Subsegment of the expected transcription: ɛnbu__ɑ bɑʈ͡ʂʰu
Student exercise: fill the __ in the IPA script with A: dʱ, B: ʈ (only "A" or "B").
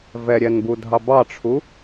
A